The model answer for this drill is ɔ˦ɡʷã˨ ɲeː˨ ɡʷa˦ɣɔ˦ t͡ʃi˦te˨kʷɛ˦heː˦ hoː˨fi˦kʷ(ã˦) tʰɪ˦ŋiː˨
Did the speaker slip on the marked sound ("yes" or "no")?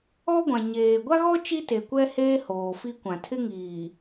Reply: yes